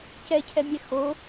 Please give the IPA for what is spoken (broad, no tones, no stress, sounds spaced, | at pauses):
c ɛ cʰ ɛ mʲ ɛ x o